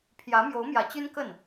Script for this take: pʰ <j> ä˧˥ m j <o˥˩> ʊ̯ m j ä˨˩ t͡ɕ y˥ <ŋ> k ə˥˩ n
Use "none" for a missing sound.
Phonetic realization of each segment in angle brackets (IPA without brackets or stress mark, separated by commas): j, o˧˥, n